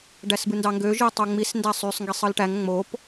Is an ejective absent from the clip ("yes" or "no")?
yes